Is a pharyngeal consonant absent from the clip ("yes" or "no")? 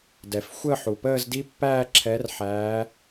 no